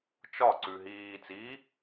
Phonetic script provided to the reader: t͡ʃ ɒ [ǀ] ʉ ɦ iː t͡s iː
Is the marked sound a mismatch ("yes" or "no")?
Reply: no